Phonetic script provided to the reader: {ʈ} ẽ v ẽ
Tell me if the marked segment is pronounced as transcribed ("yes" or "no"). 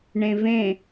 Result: no